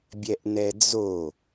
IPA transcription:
bʲ ɛ ʔ n ɛ d͡z o

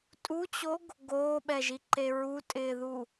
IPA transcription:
tʼ u t͡ɕ o ɡ | ɡ oː ɓ ɛ ʒ i ǃ e ɹ u tʼ ɪː ð u

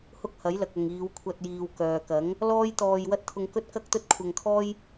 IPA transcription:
h ʊ˥ k̚ h ɐ˨˥ j l ɐ˨ k̚ ɐ˨ ŋ iː˨˧ w kʷʰ ɐ˧ t̚ j iː˨ w k œː˨ k ɐ˨˥ ŋ | l ɔː˥ j t̪ ɔː˧ j w ɐ˥ t̚ t̪ʰ ʊ˧ ŋ k ɵ˥ t̚ k ɐ˥ k̚ t̪ ɵ˥ t̚ kʷʰ ɐ˧ ŋ kʰ ɔː˥ j

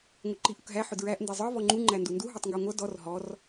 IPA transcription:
ŋʷ ɪ ǃ i ʔ ʊ k ɦ æ ħ ʊ d ɹ æ ʔ n d ɛ zˤ ə˞ v ɔ ŋ͡ǃ u ŋ͡ǃ æ n d u n d u ɦ ɔ tˤ ŋ ɡ ɔ ŋʷ ʌ d ɔ r ɦ ɔ r

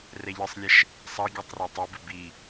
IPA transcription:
r ɛ ʎ ɨ sˤ lʲ ɛ ʃ | sˤ ɐ ɡʲ ɐ tˤ r o tˤ ɛ b ɨ b i

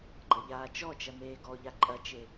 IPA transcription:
ɡ͡ǃ ɐ ʎ aː t͡ʃ ɔ t͡ʃ ɐ n̪ eː ɡ ɔ ʎ a ǃʼ ɐ t͡ʃ e

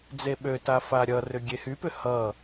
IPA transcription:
d͡z e ɓ ø t a f a ɾʲ ʌ r ʏ ɡʲ e h y p ʏ h ʌ

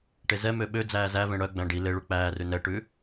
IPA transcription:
ʈ e z ɛ m ø ɓ ø d͡z æː z æ v ẽ ɽ œ ɡ͡b æ̃ ɖ i l e ɭ u k͡p æː r ʉ n ɛ ʈ ʉ

